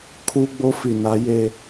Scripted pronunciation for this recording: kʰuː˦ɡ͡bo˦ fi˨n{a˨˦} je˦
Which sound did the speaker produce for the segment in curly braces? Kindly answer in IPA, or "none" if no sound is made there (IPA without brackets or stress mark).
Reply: a˨˦